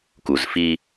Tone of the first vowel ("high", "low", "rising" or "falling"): low